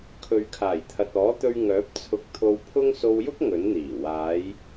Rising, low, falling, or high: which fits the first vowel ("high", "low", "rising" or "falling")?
low